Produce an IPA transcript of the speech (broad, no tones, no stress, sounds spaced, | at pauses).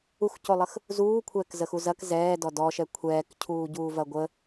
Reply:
u x c o lˠ ə x | z uː kʷʰ ɛː k z ə x u z ɐ k z ɛː d ɔ d ɔ ʃ ɛ kʷʰ ɛː k cʰ uː ɟ uː v ɐ ɡʷ ə